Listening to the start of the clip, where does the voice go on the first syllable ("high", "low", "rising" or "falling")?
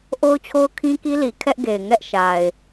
high